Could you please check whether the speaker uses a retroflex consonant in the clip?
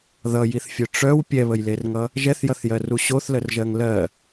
yes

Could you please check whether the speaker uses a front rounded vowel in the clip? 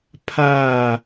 no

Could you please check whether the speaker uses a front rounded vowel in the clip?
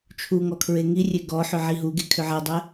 yes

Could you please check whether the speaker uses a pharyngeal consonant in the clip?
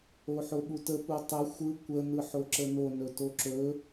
yes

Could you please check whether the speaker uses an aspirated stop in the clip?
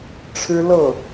yes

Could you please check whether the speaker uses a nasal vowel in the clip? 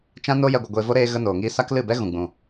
yes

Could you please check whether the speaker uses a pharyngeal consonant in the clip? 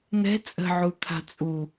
yes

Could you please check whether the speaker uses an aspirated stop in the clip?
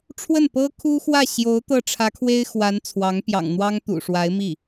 yes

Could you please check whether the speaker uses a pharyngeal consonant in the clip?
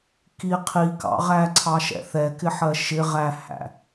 yes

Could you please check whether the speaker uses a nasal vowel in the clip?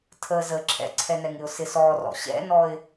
no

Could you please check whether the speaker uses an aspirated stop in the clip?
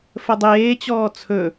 yes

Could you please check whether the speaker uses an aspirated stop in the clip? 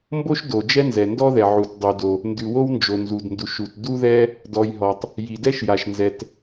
no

